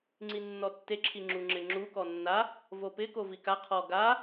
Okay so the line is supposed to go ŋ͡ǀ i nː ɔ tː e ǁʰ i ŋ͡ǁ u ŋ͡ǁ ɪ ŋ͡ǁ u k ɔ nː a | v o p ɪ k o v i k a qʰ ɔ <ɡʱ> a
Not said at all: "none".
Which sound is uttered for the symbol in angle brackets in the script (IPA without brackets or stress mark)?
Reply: ɡ